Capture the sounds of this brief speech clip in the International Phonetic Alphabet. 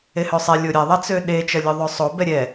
ehøsˤɛ lʲoɾʲɛ ðˤɐt͡søɗe t͡ʃɐlʲøðˤøsˤo bɛɾʲɛ

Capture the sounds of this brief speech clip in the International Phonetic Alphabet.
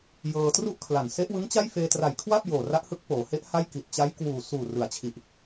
jɤː˧tru˥˩ʔkʰla˨˩n se˦˥ʔwɯ˦˥ŋt͡ɕa˥˩j feː˧tra˨˩jkʰwa˥˩p̚ joː˨˩ra˦˥ʔhɯ˦˥k̚ poː˩˦he˦˥ʔ ha˥˩jki˨˩t̚ t͡ɕa˦˥jkwuː˨˩ suː˨˩rɯ˩˦a̯t͡ɕʰi˨˩ʔ

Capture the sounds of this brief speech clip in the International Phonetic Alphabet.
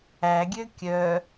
æɡʲø kʲœ

